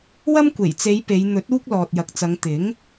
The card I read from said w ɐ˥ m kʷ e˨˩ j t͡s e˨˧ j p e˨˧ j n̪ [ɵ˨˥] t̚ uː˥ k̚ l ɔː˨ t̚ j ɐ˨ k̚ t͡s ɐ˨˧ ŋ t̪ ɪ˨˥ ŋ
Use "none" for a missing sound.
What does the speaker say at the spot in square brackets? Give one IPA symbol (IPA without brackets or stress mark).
ɵ˨˥